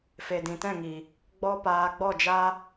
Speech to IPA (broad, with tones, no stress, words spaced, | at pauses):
fe˨dĩ˨tɛ̃˦˨ŋi˨ | ɡ͡bɔ˦paː˧ ɡ͡bɔ˦˨d͡ʒa˦